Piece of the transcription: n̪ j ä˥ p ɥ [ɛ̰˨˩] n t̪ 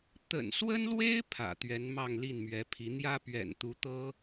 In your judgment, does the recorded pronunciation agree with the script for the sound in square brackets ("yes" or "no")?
yes